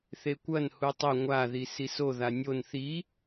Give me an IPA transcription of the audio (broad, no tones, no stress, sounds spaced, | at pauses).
θ e kʷ ɐ n h u tˤ ɵ ŋʷ a ð i s i s o ð a nʲ o n θ i